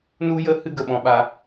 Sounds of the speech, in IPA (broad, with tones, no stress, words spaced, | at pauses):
nu˧jə˧hɨ˧ ɡə˨ɓɔ̃˧ɓa˧